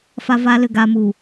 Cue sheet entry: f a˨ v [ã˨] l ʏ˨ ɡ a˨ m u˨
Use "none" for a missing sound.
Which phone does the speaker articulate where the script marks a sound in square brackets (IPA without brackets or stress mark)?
a˨